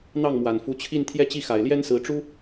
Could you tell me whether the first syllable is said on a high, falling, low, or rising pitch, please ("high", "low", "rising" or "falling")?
falling